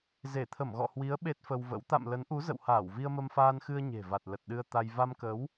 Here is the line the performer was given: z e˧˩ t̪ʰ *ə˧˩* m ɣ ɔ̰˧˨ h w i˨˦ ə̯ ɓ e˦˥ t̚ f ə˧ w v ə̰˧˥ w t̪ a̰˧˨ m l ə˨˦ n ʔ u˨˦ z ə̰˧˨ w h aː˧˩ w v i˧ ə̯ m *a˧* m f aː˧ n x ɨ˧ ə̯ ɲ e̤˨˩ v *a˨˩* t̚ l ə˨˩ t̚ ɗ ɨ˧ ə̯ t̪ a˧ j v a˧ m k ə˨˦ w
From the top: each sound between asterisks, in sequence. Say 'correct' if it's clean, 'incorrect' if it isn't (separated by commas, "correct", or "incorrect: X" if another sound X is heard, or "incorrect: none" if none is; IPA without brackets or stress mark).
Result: correct, incorrect: ə˧, correct